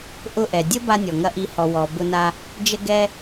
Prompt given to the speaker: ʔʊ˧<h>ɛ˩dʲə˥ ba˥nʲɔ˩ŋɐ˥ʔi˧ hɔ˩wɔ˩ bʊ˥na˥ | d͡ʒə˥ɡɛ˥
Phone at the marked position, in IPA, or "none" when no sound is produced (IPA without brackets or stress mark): ʔ